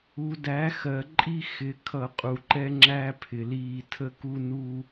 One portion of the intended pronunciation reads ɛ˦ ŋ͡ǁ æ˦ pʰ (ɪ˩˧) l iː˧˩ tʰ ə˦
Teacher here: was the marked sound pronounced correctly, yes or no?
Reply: yes